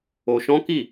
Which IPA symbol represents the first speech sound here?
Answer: o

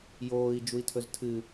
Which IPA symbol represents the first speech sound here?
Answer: j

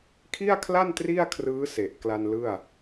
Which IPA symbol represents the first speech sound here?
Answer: kʰ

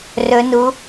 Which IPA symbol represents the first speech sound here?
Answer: r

